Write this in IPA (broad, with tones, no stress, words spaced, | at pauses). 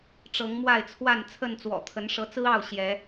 ʈ͡ʂɤ˨˦ŋmwa˥˨ɪ̯t͡sʰwa˥˨n t͡sʰə˥˨nt͡swɔ̰˨˩t̪ʰə˨˦n ʂɤ˨˦t͡sɹ̩˦ɑ˥˨ʊ̯ ɕjɛ˨˦